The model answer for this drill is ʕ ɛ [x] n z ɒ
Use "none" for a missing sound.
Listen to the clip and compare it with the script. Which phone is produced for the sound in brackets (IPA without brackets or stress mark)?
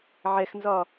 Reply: x